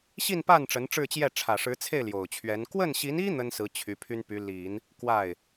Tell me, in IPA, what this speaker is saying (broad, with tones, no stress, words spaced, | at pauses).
ɕi˥˧npa˥˩n ʈ͡ʂə˧˥nʈ͡ʂɻ̩˥˧t͡ɕjɛ˥˩ ʈ͡ʂʰä˨˩ʂɻ̩˧˥t͡sʰe˥˩ɪ̯ ljo˨˩ʊ̯t͡ɕʰɥɛ˧˥n kwə˥˩nɕi˧˥ni˥ n̪ə˥nsɹ̩˧˥ t͡ɕʰy˧˥pʰy˥npy˧˥ li˨˩˦n | kwa˥˩ɪ̯